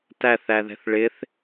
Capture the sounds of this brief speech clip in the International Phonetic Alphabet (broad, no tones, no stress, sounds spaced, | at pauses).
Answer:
t æ θ æ ð ɛ̤ θ ɭ ɪ θ